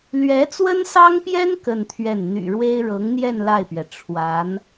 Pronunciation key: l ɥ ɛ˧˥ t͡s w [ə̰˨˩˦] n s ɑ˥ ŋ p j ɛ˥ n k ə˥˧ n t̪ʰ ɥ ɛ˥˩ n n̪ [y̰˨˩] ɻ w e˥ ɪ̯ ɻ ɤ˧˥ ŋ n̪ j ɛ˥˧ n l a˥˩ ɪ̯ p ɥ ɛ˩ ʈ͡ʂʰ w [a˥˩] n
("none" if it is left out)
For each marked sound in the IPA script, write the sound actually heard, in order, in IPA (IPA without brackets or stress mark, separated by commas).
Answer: ə˥, y̰˨˩, a˧˥